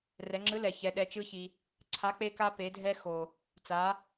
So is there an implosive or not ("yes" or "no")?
yes